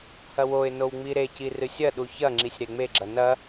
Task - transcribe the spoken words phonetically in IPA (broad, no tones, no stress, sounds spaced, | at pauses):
h ɐ w o ɪ̯ n o w ŋ͡m i ɾ e c i r ɨ sʲ ɐ ɗ u ç ɐ ŋ͡ǁ i sʲ ɾ e ŋ͡m e ɡ͡ǁ ɐ n ɐ